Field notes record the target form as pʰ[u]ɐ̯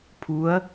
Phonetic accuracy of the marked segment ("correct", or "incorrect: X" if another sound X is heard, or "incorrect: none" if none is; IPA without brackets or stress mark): correct